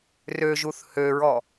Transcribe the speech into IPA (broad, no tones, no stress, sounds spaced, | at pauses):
r ø ʒ u θ h ø ɹ ɔ